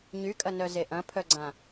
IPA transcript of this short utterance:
ɲ y kʼ ɐ n œ z e ʔ ɐ̃ pʰ œ ɡ͡ǀ ã

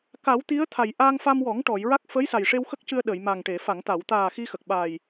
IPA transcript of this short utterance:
k a˨˩˦ w t̪ i˧˥ ə̯ t̪ʰ a˨˩ j ʔ aː˧ ŋ f a˧ m w ɔ˨˩˦ ŋ ʈ ɔ˨˩˨ j ɹ a˦˥ k̚ f əː˧˥ j s a˨˩ j ʂ e˧ w x ə˦˥ k̚ c ɨ˧ ə̯ ɗ ə˨˩˨ j m a˨˩ ŋ ʈ e˨˩˨ f a˨˩˨ ŋ t̪ a˨˩˨ w t̪ aː˨˩ x i˧ x ə˨˩ k̚ ɓ a˨˩ j

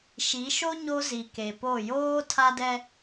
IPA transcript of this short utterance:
ʃ i˨˦ ʃ o˦ ɲ o˦ z i˨ k e˨ p o˦˨ j oː˦ tʰ a˦ d ɛ˦

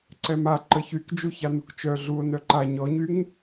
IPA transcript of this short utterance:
ǀ ɛ m a ǃ ə ç y k d͡ʒ u ç a n u k t͡ʃ œ ɮ u o̯ n œ ǃ a ɲ ɔ ɲ y ŋ

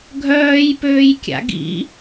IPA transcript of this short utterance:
ɡʱ œː j p øː j kʲ a̰ ɡ ḭ

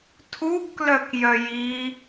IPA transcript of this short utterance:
tʰ u ɡ k l œ k j œ j i

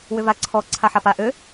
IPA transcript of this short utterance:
w ʏ v a ǀʰ ɔ ǀʰ a ħ a p a ʔ ø

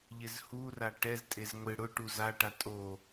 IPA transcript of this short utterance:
ʎ ɪ z h u r a ʈ ɛ z tʼ e z ŋʷ ɪ ɽ ʊ ʈ u z a ʈ a tʼ o

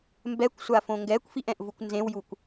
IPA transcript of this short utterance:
m b ɛ kʷ sʷ a f õ ŋ ɡ ɛ kʷ f i ʔ ɛ̃ ʔ v u kʷ n z ẽ w j u kʷ

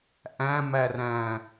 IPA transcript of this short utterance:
ʔ æ̃ m æ r æ̃

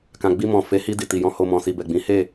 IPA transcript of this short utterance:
k ã˨ ɡ͡b i˧ m ɔ̃˨ f e˨˦ h i˧ d i˨ t i˨ j ɔ̃˧ h o˧ m ɔ̃˨ s i˨ b ɛ˨ ɡ͡b ĩ˨˦ h e˦˨

